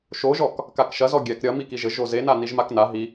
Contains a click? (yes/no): no